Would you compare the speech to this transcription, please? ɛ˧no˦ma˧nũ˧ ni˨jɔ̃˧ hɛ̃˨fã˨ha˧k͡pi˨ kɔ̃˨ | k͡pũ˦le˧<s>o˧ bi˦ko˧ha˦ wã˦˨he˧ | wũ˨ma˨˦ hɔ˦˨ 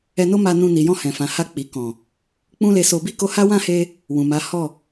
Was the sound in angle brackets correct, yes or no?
yes